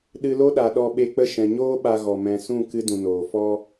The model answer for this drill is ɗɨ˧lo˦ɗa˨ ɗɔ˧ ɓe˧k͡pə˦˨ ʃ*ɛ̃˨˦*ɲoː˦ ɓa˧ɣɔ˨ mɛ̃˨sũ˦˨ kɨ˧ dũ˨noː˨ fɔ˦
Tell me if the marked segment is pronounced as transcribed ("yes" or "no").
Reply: no